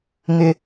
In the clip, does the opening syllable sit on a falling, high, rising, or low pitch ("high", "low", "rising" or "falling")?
low